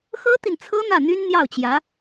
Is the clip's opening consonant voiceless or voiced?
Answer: voiceless